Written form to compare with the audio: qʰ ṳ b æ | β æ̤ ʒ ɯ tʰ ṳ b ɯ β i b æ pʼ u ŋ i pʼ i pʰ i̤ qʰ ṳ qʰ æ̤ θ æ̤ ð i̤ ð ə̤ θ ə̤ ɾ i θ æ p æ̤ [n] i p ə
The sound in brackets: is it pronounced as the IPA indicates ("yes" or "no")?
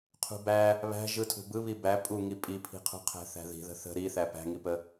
no